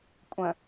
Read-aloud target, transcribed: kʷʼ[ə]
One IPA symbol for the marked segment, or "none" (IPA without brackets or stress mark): ə̃